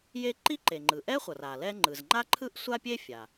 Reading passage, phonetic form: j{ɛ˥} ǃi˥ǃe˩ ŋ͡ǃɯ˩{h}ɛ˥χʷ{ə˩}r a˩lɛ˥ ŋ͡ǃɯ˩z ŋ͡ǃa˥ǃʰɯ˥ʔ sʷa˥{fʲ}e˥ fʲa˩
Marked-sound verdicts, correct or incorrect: incorrect, incorrect, incorrect, incorrect

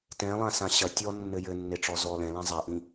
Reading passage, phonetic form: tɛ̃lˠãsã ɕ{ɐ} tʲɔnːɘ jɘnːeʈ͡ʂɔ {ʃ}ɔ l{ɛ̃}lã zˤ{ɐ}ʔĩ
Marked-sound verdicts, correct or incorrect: correct, incorrect, correct, incorrect

